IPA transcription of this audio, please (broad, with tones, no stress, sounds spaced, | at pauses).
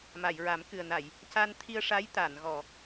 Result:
m a˨˩˨ j ɹ a˨˩˦ m k ɨ˨˩ ə̯ n a˨˩˨ j | c a˧ n t̪ʰ i˧ ə̯ ʂ a˧˥ j t̪ a˨˩˨ n ɣ ɔ˨˩˨